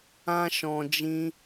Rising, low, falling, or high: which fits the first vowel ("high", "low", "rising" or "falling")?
high